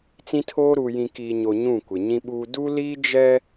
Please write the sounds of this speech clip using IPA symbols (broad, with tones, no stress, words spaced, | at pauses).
t͡sĩ˦tʰoː˦ ɾu˨jĩ˨ kiː˨ɲo˨ ɲũ˦˨ kʷɪ˨ɲĩ˦ɓuː˦ du˦liː˦ d͡ʒɛ˦